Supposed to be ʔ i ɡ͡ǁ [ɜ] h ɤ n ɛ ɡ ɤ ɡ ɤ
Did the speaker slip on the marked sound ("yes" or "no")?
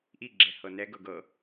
yes